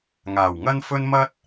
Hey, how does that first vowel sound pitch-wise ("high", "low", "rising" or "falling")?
low